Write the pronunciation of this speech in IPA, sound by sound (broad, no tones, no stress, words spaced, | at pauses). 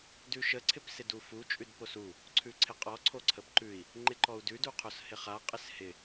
dʉʃə ǀʰɪpsɪdufu t͡ʃʼʉdposu | ǀʰʉǀʰɪqʼɔ ǀʰoǀʰəpǃʉi̯ | ŋ͡ǃɪǃɔu̯dʉd uqʰoshɪχa qʼɪshɪ